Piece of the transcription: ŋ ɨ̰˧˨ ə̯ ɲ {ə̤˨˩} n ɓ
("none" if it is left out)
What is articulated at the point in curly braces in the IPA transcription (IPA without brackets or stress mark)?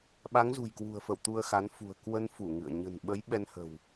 ə̤˨˩